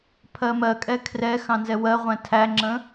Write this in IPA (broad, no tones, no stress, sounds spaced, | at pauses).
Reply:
pʰ ɜ m ɜ kʼ ɛ kʰ r ɛ x ɑ̃ n z ɛ w ɜ ʁʷ æ̃ tʰ æ ŋ͡ǁ ə̃